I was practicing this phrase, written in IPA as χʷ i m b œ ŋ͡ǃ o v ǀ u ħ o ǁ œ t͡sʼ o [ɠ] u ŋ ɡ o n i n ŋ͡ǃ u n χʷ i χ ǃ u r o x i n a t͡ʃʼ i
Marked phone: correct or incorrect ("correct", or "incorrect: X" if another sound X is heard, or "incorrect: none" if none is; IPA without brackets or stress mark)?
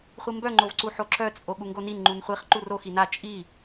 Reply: correct